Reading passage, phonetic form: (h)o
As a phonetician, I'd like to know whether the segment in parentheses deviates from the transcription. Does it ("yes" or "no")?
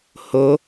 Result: no